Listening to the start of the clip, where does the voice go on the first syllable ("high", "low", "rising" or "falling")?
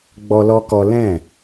high